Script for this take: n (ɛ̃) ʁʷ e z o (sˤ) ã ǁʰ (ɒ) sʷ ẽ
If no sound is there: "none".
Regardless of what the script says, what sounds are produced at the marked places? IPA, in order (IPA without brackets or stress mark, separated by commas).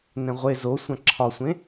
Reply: ɛ̃, sʷ, ɒ